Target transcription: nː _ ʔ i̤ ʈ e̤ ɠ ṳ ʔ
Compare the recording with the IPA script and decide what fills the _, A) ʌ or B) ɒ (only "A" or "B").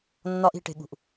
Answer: B